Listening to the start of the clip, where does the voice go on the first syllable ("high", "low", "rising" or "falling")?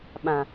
low